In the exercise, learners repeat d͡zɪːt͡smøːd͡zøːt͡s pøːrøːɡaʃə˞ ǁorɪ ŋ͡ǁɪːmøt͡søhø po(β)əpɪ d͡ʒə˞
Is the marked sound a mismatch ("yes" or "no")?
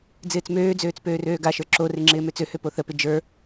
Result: yes